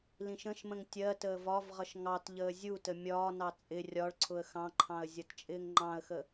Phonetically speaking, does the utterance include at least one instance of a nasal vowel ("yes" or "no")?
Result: yes